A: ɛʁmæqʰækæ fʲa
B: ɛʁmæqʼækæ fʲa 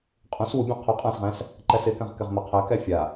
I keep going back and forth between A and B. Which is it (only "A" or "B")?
A